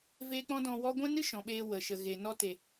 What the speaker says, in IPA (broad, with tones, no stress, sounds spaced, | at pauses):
v e˦ k͡p ɔ̃˦ d ɔ̃˧ w ɔ˦ ɡʷ ɛ̃˦ n ɨ˦ ʃ ɔ̃˨ ɓ eː˧ w ə˨ ʃ ə˨ ɣ e˨ n ɔ˧ t e˨